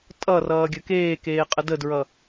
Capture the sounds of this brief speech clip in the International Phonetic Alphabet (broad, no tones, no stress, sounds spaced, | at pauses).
tʼ ʌ r ʌː ɡʲ ə k eː k eː qʼ ə d ə d ɹ ʌ